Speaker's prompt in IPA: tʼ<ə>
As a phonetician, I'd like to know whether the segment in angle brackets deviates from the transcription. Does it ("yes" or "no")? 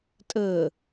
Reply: no